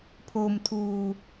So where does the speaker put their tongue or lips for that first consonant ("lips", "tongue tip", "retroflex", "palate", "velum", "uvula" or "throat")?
lips